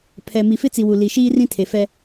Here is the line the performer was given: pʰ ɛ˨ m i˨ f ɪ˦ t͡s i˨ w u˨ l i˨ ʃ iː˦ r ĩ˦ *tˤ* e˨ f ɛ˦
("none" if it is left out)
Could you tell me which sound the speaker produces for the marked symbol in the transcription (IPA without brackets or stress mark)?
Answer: tʰ